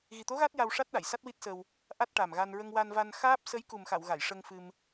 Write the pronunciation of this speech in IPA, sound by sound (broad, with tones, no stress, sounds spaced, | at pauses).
ɣ i˨˩ t̪ o˧˥ ɣ a˦˥ t̚ j a˧ w ʂ a˦˥ t̚ ɗ a˨˩˨ j s a˦˥ t̚ w i˦˥ t̚ s ə˧ w | ʔ a˦˥ t̚ ʈ a˨˩ m ɣ a˧ n ɹ ə˧ ŋ w a˧ n v a˧ n x aː˦˥ p̚ s ə˧˥ j k u˨˩ m x a˨˩˨ w ɣ a˨˩˨ j ʂ ə˧ ŋ f ɨ˧ m